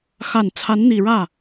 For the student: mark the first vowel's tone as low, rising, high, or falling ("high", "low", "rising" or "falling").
low